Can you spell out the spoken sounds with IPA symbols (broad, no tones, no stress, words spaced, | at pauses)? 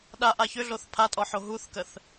ɗaʔa çʏɮoθ pʰatʼɔħo ɦuθkəθ